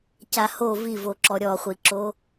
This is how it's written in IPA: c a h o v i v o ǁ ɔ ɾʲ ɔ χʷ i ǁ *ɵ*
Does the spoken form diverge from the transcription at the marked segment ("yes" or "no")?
yes